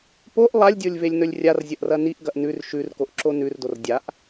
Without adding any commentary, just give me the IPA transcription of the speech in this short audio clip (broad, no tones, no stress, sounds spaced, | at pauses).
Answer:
p o ʔ lˠ a lʲ dʲ o lʲ v e lʲ n ɵ lʲ rʲ a r zʲ ɐ ʔ r ɐ n i ʔ ɡ ɐ ʔ n ʉ r ʃ ʉ r k o ʔ ǁ o n ʉ r d o r dʲ a ʔ